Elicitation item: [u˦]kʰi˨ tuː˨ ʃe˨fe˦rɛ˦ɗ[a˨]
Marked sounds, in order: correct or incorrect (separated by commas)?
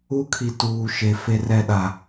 correct, correct